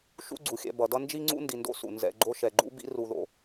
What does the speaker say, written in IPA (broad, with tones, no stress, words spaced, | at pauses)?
ʃṵ˦ɡ͡ǀu˩xʲɛ̰˨ bʌ˩dʌ˦ nd͡ʒi˥ŋ͡ǀṵ˥ ndi˨ndo̰˥sṵ˩ nzɛ̰˨ɡ͡ǃo˦ ʃɛ˨ɡ͡ǃṵ˥ bḭ˥ru˨ðo̰˩